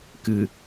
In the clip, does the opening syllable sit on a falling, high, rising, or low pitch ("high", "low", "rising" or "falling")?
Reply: low